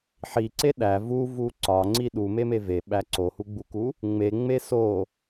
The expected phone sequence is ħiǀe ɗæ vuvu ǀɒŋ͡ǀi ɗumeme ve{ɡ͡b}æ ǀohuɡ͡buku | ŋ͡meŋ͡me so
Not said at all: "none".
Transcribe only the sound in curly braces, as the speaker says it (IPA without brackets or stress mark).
ɓ